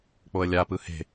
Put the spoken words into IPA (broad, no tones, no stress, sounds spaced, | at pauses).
k͡p o ə̯ lʲ a p ɯ h e̤